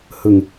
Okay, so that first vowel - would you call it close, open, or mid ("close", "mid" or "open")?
close